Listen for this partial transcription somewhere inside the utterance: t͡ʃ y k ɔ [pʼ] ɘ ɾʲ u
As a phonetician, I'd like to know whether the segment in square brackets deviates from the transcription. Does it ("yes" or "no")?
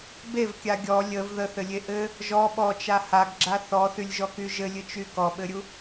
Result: yes